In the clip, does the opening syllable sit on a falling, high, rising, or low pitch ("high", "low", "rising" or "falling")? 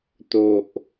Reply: low